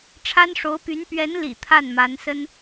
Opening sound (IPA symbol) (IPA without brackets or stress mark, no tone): ʈ͡ʂʰ